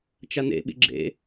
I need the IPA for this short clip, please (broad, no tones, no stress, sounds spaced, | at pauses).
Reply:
t͡ʃ a n ḛ ɓ ḭ ɡ͡ǁ ḛ